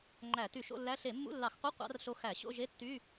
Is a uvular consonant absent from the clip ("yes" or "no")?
no